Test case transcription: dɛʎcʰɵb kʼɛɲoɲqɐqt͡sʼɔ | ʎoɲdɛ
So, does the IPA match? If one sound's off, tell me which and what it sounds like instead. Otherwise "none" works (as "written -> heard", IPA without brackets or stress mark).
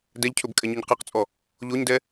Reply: ɐ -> a